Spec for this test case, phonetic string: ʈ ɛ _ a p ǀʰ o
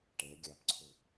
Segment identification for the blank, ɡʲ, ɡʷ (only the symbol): ɡʲ